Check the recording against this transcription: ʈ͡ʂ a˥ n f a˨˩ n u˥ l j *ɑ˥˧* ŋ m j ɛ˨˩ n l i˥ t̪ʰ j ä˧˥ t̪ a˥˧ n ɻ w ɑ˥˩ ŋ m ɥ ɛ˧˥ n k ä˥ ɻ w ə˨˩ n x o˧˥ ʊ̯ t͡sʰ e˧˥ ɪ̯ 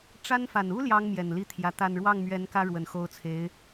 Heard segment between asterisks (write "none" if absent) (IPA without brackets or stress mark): ɑ˥